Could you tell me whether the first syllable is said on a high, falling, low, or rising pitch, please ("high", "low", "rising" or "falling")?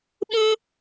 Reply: high